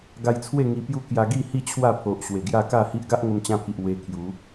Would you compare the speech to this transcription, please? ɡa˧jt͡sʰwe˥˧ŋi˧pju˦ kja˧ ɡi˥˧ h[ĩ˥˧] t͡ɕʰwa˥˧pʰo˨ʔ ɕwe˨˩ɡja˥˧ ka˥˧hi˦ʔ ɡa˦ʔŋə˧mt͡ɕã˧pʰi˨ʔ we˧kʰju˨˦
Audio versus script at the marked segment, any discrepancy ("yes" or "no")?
yes